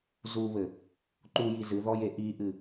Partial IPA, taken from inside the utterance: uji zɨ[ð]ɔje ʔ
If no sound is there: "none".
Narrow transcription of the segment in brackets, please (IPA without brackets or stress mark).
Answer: ð